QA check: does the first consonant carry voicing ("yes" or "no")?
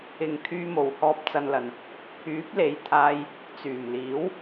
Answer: yes